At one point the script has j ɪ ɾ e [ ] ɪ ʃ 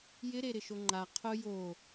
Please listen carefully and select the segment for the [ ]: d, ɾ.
ɾ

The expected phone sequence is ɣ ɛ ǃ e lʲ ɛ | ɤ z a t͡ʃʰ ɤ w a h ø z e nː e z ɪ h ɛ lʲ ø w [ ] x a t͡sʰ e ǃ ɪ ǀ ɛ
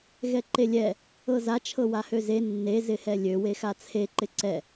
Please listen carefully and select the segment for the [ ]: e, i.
e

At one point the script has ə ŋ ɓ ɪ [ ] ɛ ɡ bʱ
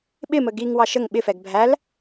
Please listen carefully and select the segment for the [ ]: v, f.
f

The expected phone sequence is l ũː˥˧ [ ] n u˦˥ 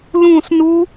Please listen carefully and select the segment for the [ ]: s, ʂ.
s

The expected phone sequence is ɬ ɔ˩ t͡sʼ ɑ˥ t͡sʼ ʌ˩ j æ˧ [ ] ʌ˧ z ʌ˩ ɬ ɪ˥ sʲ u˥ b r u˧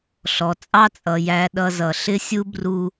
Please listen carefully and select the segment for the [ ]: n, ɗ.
ɗ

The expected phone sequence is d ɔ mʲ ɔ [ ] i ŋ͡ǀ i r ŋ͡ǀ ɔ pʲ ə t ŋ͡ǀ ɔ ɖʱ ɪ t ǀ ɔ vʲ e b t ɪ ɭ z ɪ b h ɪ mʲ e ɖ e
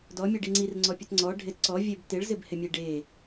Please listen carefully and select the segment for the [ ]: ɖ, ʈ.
ɖ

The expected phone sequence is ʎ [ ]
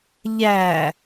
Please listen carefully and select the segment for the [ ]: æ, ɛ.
æ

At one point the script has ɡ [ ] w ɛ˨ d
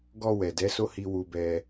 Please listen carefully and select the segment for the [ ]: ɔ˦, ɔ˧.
ɔ˧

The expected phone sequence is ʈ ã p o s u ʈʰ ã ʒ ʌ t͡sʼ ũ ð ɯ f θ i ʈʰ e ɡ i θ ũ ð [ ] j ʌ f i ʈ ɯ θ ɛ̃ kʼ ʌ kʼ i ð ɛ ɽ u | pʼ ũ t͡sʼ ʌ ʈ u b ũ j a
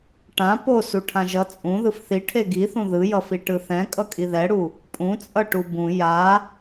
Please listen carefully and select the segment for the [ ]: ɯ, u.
ɯ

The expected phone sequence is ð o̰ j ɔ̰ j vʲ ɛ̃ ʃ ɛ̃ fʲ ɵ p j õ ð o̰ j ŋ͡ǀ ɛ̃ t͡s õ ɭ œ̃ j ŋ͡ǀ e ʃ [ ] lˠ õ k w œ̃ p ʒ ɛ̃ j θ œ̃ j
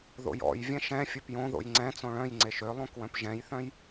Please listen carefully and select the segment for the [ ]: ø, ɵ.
ø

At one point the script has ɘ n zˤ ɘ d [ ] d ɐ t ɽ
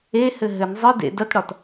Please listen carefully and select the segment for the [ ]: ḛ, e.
ḛ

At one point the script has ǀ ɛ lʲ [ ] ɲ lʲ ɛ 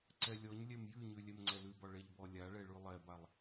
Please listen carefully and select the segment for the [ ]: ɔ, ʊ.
ɔ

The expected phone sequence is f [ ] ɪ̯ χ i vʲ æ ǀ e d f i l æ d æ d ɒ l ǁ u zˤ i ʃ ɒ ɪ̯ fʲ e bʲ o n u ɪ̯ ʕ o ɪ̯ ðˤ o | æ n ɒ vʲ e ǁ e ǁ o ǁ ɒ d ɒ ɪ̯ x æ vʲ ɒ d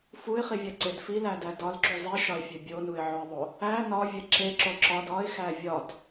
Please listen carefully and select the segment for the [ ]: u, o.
u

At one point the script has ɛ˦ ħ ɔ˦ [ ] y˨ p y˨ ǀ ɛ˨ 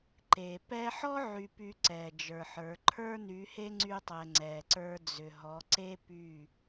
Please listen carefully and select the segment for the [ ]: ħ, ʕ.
ʕ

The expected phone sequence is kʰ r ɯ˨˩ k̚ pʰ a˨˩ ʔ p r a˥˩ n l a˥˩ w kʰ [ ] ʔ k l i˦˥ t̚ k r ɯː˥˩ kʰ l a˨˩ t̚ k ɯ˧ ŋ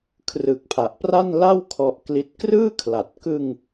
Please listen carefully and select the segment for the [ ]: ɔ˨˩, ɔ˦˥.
ɔ˦˥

